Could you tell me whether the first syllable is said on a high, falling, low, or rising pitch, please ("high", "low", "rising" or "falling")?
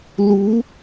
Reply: rising